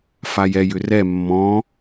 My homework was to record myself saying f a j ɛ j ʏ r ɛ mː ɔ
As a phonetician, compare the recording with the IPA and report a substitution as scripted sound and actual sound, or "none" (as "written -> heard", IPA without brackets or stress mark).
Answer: ɔ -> ɔ̃